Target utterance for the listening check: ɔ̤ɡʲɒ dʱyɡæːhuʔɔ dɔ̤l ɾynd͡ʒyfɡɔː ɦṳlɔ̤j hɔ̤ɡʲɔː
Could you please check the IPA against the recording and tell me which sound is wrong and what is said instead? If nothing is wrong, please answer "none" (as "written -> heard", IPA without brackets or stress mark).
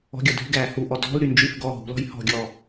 none